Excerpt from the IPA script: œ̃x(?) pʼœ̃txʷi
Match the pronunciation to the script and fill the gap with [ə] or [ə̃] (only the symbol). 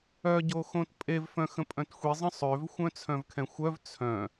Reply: ə̃